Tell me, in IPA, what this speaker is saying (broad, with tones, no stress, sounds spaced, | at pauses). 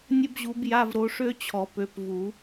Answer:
nʲ ə˥ b ʑ u˨˦ b j a˧˥˧ v ɾ o˨˦ ʂ ø˥ t͡ɕʰ ɔ˨˩˦ p ø˨˦ p v u˨˩˦